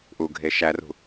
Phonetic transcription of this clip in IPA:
ʔuɡʱe ʃærṳ

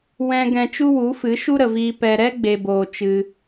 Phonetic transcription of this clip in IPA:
wɛ̃˧ ɡɛ̃˧t͡ʃu˦wu˨˦fɨ˨˦ ʃu˦ɾə˨viː˧ pɛ˧ ɾɛ˦ ɡ͡be˧boː˧ t͡ʃɨ˧

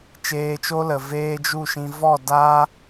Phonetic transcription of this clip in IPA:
t͡ʃeː˧t͡ʃo˦lə˨ veː˦d͡ʒu˦˨ʃĩ˧ vɔ˦˨da˦

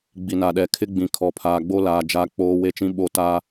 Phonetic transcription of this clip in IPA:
ɡ͡bi˨na˨ɗɛ˨˦ kʰɪ˦ɡ͡bĩ˨ kʰɔ˨pʰaː˨ɡ͡bo˦laː˨ d͡ʒa˦k͡poː˦ we˦t͡ʃĩ˦ɓo˦˨ ta˦

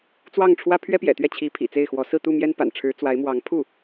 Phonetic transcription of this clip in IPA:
t͡swɑ˥˩ŋʈ͡ʂʰwä˥ pʰɥɛ˥pjɛ̰˨˩t̪ɥɛ˥˩ t͡ɕʰi˧˥pʰḭ˨˩ t͡se˥˩ɪ̯xwɔ˧˥ sɹ̩˥˧t̪u˥˩mjɛ˥npa̰˨˩n ʈ͡ʂʰɻ̩˧˥t͡swa˧˥ɪ̯mwɑ˧˥ŋ pʰu˥˩

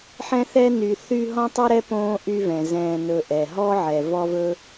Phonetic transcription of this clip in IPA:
ħɛ̃˦θɛ˦ny˨ θy˥ ɦɔ̃˥tˤɛ˥ɾɛ˥põː˦ ʔy˦vɛ̃˩ zɛ̃ː˨nɵ˨ʔɛ˩ɦɔ˥ ʕɛ˨vɔ˥vɵ˥

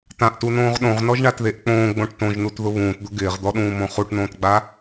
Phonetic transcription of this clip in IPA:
tãʔtunõːʁ ɗõʁnɔʒɳatðeʔ k͡põːɡ͡bõʈ tõʒnutðʊ βũːtd̪ʊ ɡɪːʁd̪ɔɗũːmõ χuʈnõːtɡ͡ba

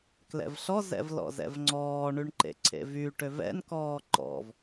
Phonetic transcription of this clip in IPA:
klɛ̰vɬɔzɛ̰v lɔ̰zɛ̰vŋ͡ǀɔːɳyɳ ǃḛǀʰḛvyʈøv ɛ̰nkɔː ǃɔ̰v

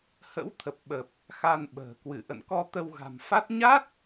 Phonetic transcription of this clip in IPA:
hə̰˧˥wt̪ʰə˨˩p̚ɓə˨˩p̚ | xa˧nɓə̤ː˨˩ kwɨ˧˩ʔə̰˧˨nkɔ˧ t̪ə˧wɣa̤˨˩m fa˦˥t̚ ɲa˦˥t̚

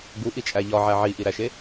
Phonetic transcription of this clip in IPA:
ɡuʔit͡ʃʼæ ʎɒʕæ ʕiʔiɾæʃe

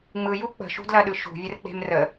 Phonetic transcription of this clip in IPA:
ŋ͡mɯju k͡pə̤ʃṳdlɐɗɯ ʃṳvʲərk͡pe̤m rə

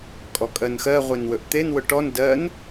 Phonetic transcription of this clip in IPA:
kʼɔkʼɜnxɜ ʁʷenwɵʔt̪en wʊʈɔn dɜn

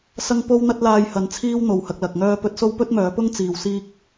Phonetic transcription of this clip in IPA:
sɐ˥ŋ po˥wn̪ɐ˥t̚laː˧jhɐ˨˥n t͡sʰiː˥w n̪o˨whɐ˧k̚lɐ˨k̚ŋœː˥ pɵ˧t̚so˥wpɵ˥t̚mœː˨˥ pʊ˥ŋt͡siː˨w siː˥k̚

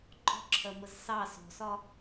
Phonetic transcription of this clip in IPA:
ɡ͡ǃɔ̤ǁʰɜməz sɑ sɔ̤sɒ

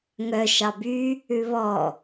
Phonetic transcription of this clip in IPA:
ŋœ ʃɑby | ʉβɔ

